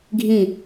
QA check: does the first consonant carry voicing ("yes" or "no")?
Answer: yes